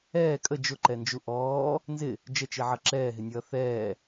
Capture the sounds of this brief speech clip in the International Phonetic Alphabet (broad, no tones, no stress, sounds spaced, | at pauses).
ɛː kʼ ə d͡ʒ ʊ ǃ ɛ n d͡ʒ u ʔ ɔː | n z ɪ | d͡ʒ ə t͡ʃ i ʕ ʌ ǁ ɛː ɦ ɪ nʲ ʌː θ ɛː